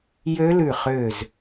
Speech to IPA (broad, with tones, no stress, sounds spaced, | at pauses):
j ø˦˥ l ʉ˧˩ χ øː˧˩ z